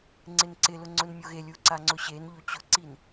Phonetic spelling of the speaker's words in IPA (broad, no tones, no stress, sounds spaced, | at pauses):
ŋ͡ǀ ɪ n ǀ ɪ l ʊ ŋ͡ǀ ʊ n mʲ o ɣ e lʲ u ǀ a ŋ͡ǀ ʊ ɕ e n ʎ o t͡ɕ ʊ ǀ i n